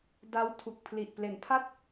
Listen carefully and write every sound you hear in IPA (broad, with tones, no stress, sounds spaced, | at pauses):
d a˦˥ w tʰ u˨˩ k̚ pʰ l i˨˩ ʔ p l e˩˦ n pʰ a˥˩ t̚